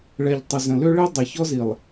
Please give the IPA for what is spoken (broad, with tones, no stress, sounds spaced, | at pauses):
ɭ ɛ˨ ʎ tˤ ə˨ z ə̃˨ l ø˦ ɭ e˦ dˤ ɛ˨ ç ɔ˦ z i˨ lˠ